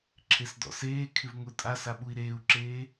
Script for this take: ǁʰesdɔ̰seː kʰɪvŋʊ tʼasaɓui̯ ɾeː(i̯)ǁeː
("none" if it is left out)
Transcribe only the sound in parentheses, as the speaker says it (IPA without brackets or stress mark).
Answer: u̯